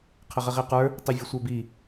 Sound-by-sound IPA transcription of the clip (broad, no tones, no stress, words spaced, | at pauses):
qʰəʁəʁiqə˞ | tˤivʲəsʷə˞bi